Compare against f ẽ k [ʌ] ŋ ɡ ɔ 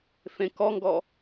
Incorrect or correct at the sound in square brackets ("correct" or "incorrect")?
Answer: incorrect